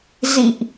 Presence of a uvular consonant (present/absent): absent